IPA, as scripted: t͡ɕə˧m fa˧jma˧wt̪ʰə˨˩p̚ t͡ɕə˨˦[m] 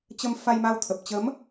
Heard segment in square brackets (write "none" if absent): m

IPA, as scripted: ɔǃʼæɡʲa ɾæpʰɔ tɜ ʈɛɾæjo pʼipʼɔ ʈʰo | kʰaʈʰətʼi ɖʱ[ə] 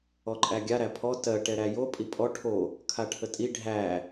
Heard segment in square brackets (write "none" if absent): æ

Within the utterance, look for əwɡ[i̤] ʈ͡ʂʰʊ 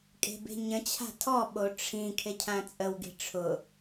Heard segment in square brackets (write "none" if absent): i̤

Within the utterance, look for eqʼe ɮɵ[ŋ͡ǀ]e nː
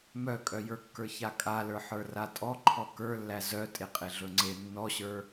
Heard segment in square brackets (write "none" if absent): ŋ͡ǀ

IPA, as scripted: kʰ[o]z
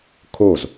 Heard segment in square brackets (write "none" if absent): o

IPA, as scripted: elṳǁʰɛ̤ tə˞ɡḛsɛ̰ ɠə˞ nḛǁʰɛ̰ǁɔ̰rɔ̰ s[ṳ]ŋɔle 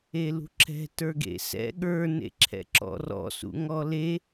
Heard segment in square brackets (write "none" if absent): ṵ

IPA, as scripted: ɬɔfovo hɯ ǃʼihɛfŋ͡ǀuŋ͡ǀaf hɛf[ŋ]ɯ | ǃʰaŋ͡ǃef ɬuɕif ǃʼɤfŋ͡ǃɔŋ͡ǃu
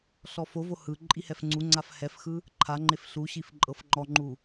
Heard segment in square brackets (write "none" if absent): x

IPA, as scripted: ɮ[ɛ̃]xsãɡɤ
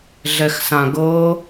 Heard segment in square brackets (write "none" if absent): ɛ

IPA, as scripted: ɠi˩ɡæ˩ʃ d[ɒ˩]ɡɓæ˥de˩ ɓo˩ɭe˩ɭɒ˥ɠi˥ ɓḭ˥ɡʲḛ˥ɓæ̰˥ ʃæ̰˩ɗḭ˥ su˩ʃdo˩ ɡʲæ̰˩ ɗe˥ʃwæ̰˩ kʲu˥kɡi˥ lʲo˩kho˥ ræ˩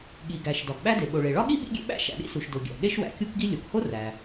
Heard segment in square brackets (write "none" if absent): ɒ˩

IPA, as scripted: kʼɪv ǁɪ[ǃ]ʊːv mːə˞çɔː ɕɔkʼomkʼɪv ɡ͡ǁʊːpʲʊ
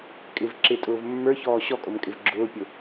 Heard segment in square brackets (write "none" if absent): tʼ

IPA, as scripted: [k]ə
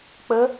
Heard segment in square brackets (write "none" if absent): k͡p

